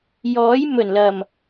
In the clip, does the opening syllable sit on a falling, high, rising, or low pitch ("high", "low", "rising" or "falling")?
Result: rising